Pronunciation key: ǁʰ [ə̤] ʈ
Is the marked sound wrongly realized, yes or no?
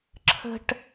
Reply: no